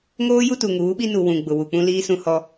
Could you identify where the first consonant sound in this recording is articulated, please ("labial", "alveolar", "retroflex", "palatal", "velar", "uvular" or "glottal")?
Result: velar